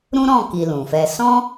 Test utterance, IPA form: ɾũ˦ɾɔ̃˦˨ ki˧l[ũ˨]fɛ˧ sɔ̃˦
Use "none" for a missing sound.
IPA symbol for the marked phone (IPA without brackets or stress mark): ũ˨